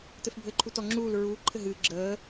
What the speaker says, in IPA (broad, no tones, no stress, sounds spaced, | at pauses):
t ɘ f bʱ ɘː ǃʰ u t ɔ ŋ͡ǁ uː l ɹ uː ǃʰ ɘ ɦ ɨː ɡ͡ǁ əː